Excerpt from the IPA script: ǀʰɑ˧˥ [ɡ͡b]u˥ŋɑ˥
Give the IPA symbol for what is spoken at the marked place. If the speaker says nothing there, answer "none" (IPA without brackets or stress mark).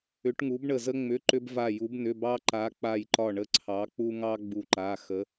k͡p